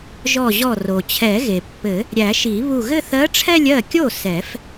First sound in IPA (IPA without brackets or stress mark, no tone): ʒ